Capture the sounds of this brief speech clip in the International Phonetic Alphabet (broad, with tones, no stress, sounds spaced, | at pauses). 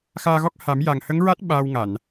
x aː˧ ɣ ɔ˦˥ k̚ h a˨˩˦ m j a˨˩ ŋ h ə˧˥ ŋ ɹ a˦˥ t̚ ɓ aː˧ w ŋ a˨˩˨ n